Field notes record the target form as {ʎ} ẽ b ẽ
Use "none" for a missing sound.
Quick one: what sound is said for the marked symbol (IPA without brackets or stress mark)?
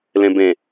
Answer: l